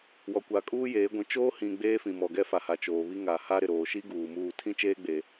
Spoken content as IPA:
w ɔ˨ kʷ a˨ kʼ uː˦ j eː˨˦ ɡʷ ĩ˨ t͡ʃ oː˦ h ĩ˨ ɡ͡b eː˦ f ĩ˨ m ɔ˨ ɡ ɛ˦ f a˨ h a˨ t͡ʃ oː˨ β i˦ ŋ a˨ h a˦ ɾ ɪ˨ ɾ oː˨ ʃ i˦ ɡ uː˨ m uː˦˨ tʰ ĩ˦ t͡ʃ eː˦ ɡ͡b eː˦

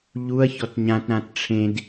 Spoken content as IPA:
ʎ u ɐ̯ ç ɔ t ɲ ã t ɾ ã t ʈ͡ʂʰ ẽ d

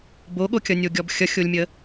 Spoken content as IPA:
b o ɠ o kʲ ʌ nʲ o ɡʲ ɔ b xʲ ʌ xʲ o lʲ mʲ ə

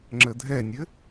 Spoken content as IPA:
ŋ͡ǁ ə dʱ ɛ nʲ ɘ

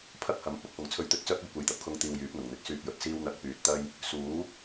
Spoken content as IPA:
pʰ ɐ˥ k̚ h ɐ˨˥ m p ʊ˧ k̚ f ʊ˨ ŋ t͡sʰ ɵ˧ ɥ t̪ ɵ˧ t̚ t͡s œː˥ k̚ ɵ˧ ɥ kʷ e˨ j t̪ ɐ˧ p̚ kʰ ʊ˧ ŋ t̪ iː˨ w j yː˨˥ p̚ n̪ ʊ˨˩ ŋ n̪ ɪ˧ k̚ s yː˧ p̚ j ɵ˨˥ t̚ s iː˥ w n̪ ɐ˧ k̚ p yː˨ t̚ t̪ ɐ˥ j | s uː˨˥

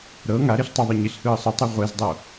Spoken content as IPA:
ɾ ɤ ŋ a ɾ e ɬ tˤ ɯ ðˤ ɯ ɲ i ɬ h ɯː sˤ u tˤ ɛ ʁʷ e z dˤ o

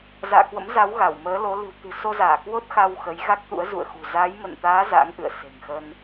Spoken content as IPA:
z a̰ː˧˨ k w ə̰˧˥ m z a˨˦ w ɣ a˧˩ w m əː˨˦ l o˨˦ l ɨ̤˨˩ w t̪ ɨ̤˨˩ s o˧ z aː˧˩ k w o˦˥ t̚ x a˧ w x ə˨˦ j ɣ a˦˥ k̚ t̪ ṵ˧˥ ə̯ z ṵ˧˨ ə̯ x ṳ˨˩ z a˨˦ j m ə̰˧˨ n t̪ aː˨˦ z a̰˧˥ ŋ ʔ ɨ̰˧˨ ə̯ s e̤˨˩ ŋ x ə˧ n

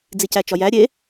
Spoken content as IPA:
d͡z i c æ t͡ʃ ɒ j æ ɾʲ e

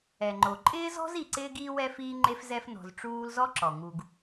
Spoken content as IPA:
ɛ˩ ŋ͡ǃ o˩ ǃʼ ɪː˥ z ɔ̤˥ z i˨ ǀ ɪː˥ ɡ iː˥ w ɛ˥ f iː˥ ŋ͡ǃ e˥ f z ɛ˦ f n ɔ̤˨ z ʈ͡ʂ uː˦ l z ɔ˥ ǁ ɔ˩ ŋ u˨ ɡ

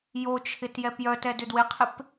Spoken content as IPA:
j o t͡ʃʰ ɪ t j ɛ p j œ t ɛ d ʏ d w ɪ qʰ ɪ p

